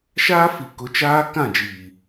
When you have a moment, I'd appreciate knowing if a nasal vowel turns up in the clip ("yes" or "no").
yes